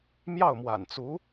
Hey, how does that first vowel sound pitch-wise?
falling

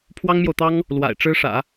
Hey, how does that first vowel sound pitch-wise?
high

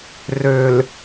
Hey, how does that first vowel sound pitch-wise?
low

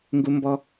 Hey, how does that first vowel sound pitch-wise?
high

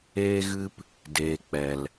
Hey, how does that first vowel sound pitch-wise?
high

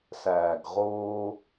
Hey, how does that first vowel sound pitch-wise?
low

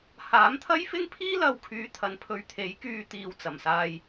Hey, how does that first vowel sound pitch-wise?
rising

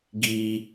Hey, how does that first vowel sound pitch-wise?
low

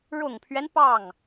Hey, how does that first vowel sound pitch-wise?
low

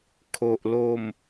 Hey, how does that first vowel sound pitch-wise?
low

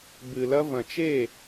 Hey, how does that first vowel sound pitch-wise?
low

